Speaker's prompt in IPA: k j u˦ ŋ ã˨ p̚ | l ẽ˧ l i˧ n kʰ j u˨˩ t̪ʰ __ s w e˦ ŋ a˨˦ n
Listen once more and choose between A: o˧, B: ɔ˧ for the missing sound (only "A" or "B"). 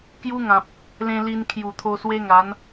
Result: A